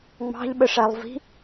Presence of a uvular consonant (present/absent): absent